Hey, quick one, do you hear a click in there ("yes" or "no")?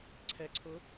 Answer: yes